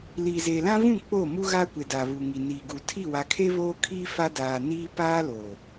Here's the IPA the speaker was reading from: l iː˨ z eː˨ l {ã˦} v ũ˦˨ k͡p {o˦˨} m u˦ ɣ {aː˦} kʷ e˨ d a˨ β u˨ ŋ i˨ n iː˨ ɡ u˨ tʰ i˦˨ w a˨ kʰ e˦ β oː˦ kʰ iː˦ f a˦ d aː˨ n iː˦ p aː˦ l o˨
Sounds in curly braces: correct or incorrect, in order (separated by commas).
correct, correct, correct